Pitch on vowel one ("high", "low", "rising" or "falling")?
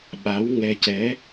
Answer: rising